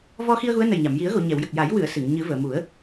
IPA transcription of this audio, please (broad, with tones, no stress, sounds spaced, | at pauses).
v ɔ˧ x i˧ ə̯ ɣ u˧˥ ə̯ n ə˨˩ j ɲ a˨˩˨ m j i˨˩˦ ə̯ ɣ o˨˩˨ ɲ ɛ˨˩˨ w j ə˨˩ k̚ j a˨˩˦ j w ɨ˨˩˨ ə̯ s ɨ˨˩˨ ŋ ɲ ɨ˨˩˦ v əː˨˩˨ m u˨˩˦ ə̯